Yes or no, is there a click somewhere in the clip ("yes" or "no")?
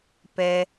no